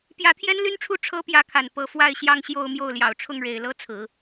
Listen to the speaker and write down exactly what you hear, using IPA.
p j ä˧˥ t̪ʰ j ɛ˥ n l y˥ n ʈ͡ʂʰ u˥˩ ʈ͡ʂʰ ɤ˥ p j ä˧˥ kʰ a˨˩ n p ɤ˧˥ f w a˥˧ ɪ̯ ɕ j ɑ˥˧ ŋ ɕ j o˥˧ ʊ̯ m j o˥˩ ʊ̯ l j ɑ˨˩ ʊ̯ ʈ͡ʂʰ ʊ˥˩ ŋ ɻ e˨˩ ɪ̯ l ɤ˥˩ t͡sʰ ɹ̩˨˩˦

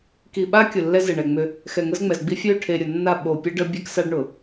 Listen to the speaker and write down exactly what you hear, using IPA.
k i˨ ɓ a˦ kʲ ʊ˨ lː ɛ˦ z e˨ ɳ ɛ˨ ŋ͡m ʏ˦ | x ɛ˨ ŋ ə˦ z ŋ͡m ɛ˨ z ɡ͡b i˦ fʲ ø˦˨ ʈʰ e˨ ɾʲ ʊ˨ nː a˦˨ ɓ o˨ pʲ ɛ˦ ɖ ə˦ bʲ ɛ˦ k s a˦ ɖ ɳ ʊ˨

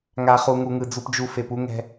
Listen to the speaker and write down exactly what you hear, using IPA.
ŋ a˨ χ u˨ ŋ u˨ ŋ ɯ˨ d͡z u˨ p d͡ʒ u˨ f e˨ p u˦ ŋ ɛ̤˦

